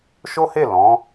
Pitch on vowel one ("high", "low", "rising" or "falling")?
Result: high